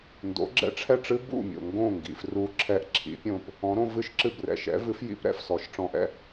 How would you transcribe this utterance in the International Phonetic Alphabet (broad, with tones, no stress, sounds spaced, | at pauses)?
n d o̰˩˥ ɡ͡ǁ ɛ̰˧ ʈ͡ʂʰ ɛ˥˩ ʈ͡ʂ ɨ˥ b ṵ˥˩ mʲ o̰˩ ŋ ɡ õ˥˩ ŋ ɡ ḭ˩ f r u˧ ǁʰ ɛ˧ ʔ ǁʰ ḭ˩˥ pʲ õ˧ p | ɔ̃˩˥ ɾ õ˧ v ɨ˥˩ ʃ ǁ ɨ˥˩ b r ɛ̰˩ ʃ ɛ̰˩˥ v ɨ˩˥ f j ḭ˩˥ p ɾ ɛ̰˩ f s ɔ˩˥ ʃ ʈ͡ʂ ɔ̃˧ ʔ ɛ̰˥˩